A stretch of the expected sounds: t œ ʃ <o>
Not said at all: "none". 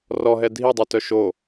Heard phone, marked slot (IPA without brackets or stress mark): o